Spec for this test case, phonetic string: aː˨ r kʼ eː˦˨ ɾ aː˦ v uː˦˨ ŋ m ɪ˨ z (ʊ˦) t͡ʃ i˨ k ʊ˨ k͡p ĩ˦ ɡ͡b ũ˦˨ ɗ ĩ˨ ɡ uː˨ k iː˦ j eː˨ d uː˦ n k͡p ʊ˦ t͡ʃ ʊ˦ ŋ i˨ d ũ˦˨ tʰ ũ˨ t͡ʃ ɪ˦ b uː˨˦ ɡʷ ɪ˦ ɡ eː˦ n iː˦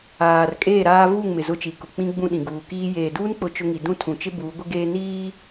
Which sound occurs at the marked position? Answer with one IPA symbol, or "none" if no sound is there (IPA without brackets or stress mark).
ʊ˦